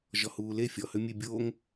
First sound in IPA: ʒ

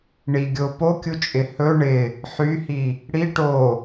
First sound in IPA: ɳ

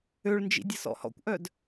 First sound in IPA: ø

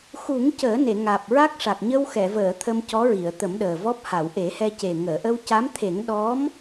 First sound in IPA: x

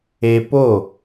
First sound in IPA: e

